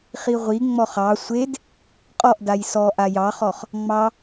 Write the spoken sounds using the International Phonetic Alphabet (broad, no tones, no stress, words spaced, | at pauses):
χiʁʷi ŋ͡mɔχɑ sʷed | qʼɔʔ dajsɔʔa jɑχɔχ | ŋ͡mɑ